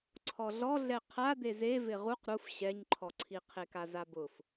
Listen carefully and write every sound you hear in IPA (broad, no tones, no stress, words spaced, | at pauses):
ǀʰɔɮɔɮɛ qʰa d̪eze vɪʁuq ɾuf ɕɛɲǃʰɔǀʰi qʰekazabʊf